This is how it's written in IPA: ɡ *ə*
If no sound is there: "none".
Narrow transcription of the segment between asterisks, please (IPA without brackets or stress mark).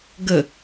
ə